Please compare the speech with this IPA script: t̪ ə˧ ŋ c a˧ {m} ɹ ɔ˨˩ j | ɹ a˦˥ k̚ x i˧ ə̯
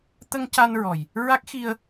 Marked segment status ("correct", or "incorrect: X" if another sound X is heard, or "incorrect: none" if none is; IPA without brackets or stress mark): incorrect: n